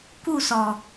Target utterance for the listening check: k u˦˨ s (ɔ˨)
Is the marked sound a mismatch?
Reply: no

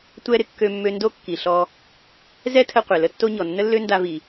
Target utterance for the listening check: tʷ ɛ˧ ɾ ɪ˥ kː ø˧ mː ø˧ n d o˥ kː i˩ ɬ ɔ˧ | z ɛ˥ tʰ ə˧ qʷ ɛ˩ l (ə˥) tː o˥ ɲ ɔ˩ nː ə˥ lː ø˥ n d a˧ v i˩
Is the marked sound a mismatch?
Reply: no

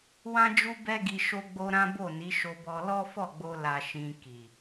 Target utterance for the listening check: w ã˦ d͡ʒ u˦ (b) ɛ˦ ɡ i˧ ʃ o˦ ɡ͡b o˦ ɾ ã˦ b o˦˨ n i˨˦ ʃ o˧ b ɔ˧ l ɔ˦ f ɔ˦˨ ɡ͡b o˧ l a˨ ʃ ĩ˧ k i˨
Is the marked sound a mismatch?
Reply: no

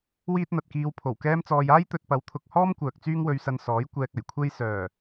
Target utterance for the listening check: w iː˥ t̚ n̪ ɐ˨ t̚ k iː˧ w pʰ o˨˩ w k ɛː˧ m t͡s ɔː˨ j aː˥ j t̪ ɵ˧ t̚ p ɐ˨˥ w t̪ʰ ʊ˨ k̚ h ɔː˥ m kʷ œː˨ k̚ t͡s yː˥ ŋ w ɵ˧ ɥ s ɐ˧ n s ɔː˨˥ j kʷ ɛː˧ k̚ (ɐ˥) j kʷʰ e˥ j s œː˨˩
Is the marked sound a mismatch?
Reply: yes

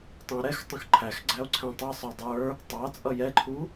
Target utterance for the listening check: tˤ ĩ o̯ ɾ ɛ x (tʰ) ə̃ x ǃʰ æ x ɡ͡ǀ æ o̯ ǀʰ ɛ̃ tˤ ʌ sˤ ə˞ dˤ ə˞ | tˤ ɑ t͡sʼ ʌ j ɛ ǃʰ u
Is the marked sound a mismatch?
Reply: yes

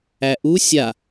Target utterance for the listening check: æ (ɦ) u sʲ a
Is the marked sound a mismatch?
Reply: yes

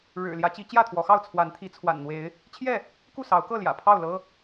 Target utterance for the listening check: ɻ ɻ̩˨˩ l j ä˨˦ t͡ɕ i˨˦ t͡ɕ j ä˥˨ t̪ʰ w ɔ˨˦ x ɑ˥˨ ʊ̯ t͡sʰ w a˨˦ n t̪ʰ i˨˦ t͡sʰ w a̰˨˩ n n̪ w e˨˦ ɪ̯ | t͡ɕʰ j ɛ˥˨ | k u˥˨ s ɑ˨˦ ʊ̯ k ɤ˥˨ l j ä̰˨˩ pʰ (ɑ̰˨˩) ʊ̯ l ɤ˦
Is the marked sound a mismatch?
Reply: yes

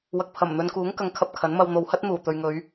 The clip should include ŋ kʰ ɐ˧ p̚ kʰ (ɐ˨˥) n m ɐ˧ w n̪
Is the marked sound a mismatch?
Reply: no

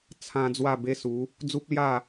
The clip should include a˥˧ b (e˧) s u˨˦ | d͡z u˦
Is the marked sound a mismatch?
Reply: yes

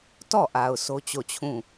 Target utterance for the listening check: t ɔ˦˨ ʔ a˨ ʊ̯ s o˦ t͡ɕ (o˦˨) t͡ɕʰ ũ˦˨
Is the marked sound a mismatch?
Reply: no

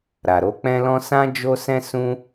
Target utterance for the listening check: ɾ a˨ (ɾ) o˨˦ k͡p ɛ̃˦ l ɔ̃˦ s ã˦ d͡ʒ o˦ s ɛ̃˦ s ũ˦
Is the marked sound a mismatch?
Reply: no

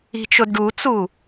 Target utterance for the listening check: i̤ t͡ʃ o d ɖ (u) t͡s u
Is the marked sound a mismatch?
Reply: no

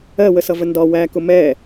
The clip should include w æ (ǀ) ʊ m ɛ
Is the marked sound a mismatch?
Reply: yes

